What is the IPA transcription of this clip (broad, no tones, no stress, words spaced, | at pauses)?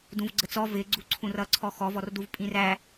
dũvɡ͡ǀət͡sɔ vɪɡ͡ǀuǀʰũr ʌǀʰɔ xɔvɔrduv pʼĩræ